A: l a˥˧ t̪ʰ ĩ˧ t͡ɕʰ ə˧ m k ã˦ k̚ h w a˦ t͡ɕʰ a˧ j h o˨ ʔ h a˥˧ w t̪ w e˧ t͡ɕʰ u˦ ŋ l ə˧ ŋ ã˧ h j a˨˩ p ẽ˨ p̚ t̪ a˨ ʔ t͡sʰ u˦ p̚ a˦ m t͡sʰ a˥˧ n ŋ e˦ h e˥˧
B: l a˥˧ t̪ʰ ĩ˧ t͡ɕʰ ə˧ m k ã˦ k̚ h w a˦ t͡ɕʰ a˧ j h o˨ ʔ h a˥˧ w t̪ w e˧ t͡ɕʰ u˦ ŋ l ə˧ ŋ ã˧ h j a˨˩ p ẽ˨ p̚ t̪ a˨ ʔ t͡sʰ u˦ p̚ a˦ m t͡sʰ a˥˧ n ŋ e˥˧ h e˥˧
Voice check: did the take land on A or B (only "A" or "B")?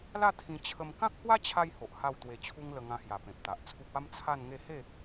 B